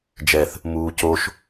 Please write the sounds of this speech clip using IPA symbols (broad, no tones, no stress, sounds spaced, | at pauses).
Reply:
d͡ʒ ɛ θ | m uː c o ʃ